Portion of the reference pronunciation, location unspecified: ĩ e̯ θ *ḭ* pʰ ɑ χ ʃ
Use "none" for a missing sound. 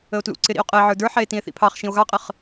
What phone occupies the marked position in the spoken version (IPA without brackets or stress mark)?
ḭ